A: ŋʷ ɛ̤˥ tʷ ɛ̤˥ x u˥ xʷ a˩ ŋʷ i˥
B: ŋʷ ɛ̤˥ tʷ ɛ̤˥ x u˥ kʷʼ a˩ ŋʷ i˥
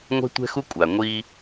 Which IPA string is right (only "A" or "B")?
B